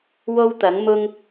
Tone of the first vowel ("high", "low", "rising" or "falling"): high